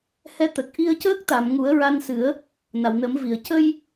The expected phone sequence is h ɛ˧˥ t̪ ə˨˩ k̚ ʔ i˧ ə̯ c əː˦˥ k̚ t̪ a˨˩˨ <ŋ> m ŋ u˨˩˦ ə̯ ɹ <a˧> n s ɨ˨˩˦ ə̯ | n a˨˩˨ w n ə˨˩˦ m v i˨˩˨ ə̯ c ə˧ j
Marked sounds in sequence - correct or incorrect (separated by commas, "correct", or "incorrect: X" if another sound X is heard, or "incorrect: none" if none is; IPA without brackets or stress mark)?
incorrect: none, correct